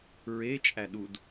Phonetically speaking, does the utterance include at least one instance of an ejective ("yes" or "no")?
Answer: yes